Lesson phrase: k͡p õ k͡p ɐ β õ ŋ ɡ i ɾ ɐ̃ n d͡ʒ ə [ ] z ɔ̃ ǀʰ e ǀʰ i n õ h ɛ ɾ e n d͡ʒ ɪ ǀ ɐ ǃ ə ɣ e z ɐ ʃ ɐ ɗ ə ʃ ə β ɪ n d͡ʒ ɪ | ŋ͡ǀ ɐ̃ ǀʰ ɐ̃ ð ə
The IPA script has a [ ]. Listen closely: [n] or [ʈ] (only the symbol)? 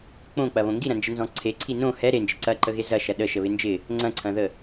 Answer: n